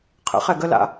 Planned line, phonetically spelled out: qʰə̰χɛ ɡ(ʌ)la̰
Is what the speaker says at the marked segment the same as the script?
no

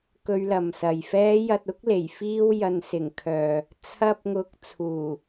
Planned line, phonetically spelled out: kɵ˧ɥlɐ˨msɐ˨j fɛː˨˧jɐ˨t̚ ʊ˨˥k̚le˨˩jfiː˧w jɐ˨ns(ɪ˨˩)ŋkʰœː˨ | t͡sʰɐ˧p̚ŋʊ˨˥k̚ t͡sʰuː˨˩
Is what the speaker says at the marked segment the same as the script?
yes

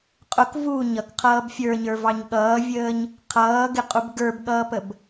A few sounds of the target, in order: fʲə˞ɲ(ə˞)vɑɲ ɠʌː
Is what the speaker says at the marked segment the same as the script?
yes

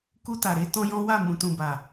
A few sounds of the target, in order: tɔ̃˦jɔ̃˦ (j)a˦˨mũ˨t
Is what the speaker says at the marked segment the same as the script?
no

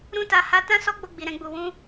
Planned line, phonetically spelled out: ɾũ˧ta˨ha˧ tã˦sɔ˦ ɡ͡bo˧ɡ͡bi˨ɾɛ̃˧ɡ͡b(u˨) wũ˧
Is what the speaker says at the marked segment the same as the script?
yes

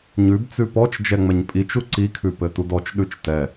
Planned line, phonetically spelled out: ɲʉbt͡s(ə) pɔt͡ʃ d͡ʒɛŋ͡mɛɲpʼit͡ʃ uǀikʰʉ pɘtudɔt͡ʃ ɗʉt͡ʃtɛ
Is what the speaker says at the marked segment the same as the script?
no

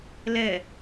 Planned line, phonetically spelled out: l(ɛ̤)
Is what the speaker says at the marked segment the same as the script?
no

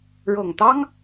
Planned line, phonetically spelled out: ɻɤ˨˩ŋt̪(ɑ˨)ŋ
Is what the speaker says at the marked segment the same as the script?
no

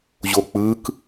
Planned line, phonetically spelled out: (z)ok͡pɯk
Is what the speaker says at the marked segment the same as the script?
no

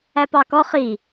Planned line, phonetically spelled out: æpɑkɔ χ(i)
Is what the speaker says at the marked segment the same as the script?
yes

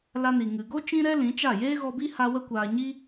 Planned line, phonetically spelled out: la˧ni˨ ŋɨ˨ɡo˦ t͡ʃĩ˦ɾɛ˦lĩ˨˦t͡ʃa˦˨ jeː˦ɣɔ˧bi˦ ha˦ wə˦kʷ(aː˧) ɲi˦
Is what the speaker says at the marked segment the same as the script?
yes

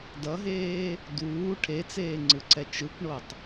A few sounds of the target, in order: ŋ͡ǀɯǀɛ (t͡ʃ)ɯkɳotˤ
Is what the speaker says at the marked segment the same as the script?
yes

